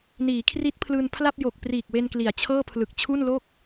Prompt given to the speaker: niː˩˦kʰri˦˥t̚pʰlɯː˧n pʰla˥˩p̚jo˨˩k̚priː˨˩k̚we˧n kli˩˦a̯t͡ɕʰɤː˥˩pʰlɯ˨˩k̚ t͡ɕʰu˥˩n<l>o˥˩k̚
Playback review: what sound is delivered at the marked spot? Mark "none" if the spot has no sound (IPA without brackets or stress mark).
l